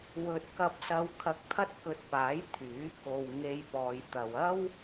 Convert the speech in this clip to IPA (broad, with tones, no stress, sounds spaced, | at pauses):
w ɵ˧ t̚ k ɐ˧ p̚ s ɐ˧ w kʰ ɐ˧ k̚ t̪ʰ ɐ˥ t̚ k ɵ˧ t̚ p aː˨˥ j t̪ʰ yː˨˥ k o˨ w ŋ e˧ j p ɔː˨ j t̪ ɐ˨ w ɐ˥ w